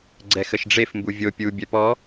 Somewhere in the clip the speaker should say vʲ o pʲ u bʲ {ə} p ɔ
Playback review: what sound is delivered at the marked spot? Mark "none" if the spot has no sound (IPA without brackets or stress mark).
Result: œ